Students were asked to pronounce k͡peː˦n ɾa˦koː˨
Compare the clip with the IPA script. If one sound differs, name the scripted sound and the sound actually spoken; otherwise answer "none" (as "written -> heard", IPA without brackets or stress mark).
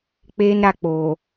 k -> k͡p